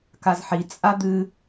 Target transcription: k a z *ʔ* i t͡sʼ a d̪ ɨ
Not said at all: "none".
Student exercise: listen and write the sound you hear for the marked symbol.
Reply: ħ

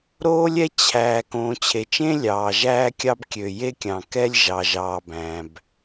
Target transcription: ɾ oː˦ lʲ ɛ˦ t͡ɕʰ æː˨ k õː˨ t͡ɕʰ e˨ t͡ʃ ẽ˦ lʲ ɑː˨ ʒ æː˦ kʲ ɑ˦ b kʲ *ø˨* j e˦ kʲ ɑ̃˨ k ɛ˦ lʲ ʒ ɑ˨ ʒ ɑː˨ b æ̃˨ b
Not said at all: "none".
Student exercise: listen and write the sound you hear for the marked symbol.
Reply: ø˨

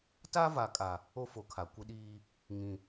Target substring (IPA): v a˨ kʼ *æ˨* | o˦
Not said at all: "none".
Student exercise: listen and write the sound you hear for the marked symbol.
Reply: a˨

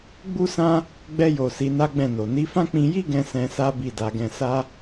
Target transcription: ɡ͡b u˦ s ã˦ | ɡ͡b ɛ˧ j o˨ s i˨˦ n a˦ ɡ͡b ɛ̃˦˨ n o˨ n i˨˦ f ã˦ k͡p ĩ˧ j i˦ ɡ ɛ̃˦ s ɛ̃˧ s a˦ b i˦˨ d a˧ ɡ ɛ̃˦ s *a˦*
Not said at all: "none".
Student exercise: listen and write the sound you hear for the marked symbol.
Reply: a˦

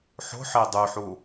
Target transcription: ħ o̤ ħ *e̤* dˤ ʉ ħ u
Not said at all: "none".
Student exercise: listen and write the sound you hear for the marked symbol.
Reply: e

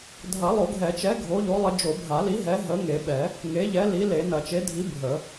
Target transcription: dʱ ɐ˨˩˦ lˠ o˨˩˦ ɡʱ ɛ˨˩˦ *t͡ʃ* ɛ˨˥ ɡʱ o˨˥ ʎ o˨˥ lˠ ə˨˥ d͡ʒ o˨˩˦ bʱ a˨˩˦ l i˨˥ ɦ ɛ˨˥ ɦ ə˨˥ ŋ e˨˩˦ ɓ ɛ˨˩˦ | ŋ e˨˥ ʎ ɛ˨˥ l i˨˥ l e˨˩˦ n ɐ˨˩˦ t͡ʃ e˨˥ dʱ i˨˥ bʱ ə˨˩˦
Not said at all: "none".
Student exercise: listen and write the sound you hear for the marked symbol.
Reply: t͡ʃ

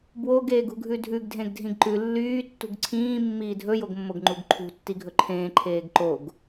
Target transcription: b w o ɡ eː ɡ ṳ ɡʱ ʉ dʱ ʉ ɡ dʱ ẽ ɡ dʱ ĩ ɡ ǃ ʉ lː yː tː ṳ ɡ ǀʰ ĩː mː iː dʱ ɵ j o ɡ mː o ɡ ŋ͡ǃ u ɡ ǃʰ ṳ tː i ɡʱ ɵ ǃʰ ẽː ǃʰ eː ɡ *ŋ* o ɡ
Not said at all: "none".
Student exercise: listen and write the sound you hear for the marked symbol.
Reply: ǃ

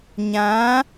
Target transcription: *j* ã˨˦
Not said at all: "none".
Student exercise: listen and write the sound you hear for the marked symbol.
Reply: ɲ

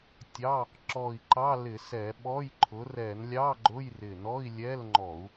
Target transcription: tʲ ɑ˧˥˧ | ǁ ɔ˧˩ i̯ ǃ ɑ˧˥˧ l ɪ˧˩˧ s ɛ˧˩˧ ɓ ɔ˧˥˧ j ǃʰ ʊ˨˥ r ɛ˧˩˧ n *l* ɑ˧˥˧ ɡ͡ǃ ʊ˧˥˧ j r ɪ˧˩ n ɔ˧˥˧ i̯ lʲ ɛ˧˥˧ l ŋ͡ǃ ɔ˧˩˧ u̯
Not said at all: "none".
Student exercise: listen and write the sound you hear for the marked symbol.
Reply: lʲ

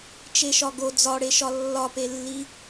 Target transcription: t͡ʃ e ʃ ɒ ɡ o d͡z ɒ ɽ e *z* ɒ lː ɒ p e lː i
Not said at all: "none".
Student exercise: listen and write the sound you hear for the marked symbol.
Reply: ʃ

